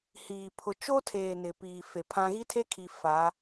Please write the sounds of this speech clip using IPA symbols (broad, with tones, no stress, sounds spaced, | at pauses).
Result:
h iː˨ pʰ ʊ˨ t͡ʃ o˦ tʰ eː˨ n ɪ˨ p iː˨ f e˨ pʰ ã˦ ɣ i˦ tʰ e˦ kʰ i˨ f a˨˦